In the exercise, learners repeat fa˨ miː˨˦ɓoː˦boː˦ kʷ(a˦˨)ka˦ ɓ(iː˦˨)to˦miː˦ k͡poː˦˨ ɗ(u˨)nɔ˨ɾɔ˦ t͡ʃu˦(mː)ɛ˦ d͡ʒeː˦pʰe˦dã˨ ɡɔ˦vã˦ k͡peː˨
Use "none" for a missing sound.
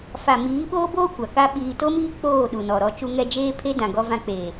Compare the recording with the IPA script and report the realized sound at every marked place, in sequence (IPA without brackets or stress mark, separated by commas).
a˨, iː˨, u˨, ŋ